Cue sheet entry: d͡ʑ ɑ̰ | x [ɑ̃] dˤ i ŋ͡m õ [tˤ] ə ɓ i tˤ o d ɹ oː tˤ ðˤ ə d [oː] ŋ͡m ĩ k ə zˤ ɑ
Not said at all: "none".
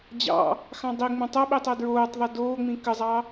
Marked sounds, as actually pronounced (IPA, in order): ɑ̃, tˤ, oː

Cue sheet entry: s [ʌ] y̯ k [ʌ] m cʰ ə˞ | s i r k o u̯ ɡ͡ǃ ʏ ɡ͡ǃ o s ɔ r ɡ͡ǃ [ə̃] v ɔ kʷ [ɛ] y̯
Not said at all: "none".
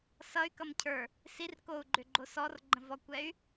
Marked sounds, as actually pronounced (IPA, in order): ʌ, ʌ, ə̃, ɛ

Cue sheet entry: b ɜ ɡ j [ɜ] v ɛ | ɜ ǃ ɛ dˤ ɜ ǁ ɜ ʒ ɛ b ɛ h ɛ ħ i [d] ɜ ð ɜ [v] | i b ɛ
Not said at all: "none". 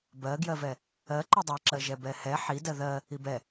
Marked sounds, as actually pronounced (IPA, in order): ɜ, d, none

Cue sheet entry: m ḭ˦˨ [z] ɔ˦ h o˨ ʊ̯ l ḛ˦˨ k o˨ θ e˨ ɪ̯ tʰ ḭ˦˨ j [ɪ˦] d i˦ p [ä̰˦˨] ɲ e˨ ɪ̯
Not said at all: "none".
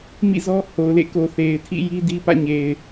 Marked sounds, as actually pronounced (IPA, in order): z, i˦, ä̰˦˨

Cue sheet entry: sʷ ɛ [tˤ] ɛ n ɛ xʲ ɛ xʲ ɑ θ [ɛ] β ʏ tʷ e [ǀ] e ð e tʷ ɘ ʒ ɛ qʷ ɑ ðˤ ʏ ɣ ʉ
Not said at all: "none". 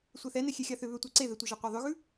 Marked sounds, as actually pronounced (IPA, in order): θ, ʏ, ǀ

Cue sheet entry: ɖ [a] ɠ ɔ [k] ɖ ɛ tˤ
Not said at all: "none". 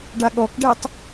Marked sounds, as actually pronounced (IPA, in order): a, k

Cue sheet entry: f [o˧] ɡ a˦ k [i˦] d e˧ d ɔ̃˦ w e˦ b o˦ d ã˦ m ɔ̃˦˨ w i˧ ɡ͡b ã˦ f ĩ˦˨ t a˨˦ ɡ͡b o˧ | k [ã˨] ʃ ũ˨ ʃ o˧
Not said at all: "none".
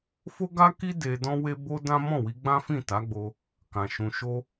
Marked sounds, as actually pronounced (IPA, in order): o˦, i˦, ã˨

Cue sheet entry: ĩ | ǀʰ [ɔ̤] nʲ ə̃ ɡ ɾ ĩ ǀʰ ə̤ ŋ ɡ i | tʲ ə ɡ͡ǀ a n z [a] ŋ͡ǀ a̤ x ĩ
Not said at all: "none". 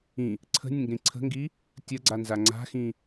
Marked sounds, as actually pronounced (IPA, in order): ə̤, a

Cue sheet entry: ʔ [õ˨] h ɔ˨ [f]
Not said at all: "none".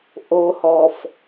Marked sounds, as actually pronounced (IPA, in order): o˨, f

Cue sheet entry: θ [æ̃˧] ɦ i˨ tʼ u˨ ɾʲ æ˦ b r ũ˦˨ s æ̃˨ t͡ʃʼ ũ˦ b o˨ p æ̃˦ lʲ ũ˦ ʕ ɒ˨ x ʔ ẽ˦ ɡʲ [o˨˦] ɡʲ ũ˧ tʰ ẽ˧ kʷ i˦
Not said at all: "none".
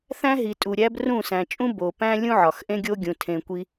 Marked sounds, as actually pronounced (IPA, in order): æ̃˦, o˦

